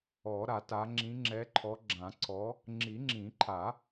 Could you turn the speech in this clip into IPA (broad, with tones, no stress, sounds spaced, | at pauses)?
ɔ˨˩˦ ɾ a˨˩˦ t a˨˦ ŋ͡ǁ ĩ˨˦ ŋ͡ǁ ɛ˨˦ ǃʰ ɔ˨˦ ɡ͡ǁ ã˨˩˦ ǀʰ ɔ˨˦ | ŋ͡ǁ i˨˩˦ ŋ͡ǁ ĩ˨˩˦ ǃʰ a˨˩˦